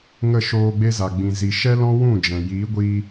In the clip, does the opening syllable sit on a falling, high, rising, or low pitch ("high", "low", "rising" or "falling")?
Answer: falling